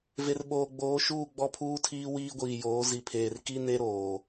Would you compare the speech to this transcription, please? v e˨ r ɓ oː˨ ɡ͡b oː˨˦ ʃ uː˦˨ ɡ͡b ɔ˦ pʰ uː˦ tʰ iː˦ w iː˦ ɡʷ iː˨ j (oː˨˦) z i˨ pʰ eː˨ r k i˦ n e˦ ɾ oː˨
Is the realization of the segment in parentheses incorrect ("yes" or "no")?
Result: no